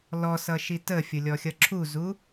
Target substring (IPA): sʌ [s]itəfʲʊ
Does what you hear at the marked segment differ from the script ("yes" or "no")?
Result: yes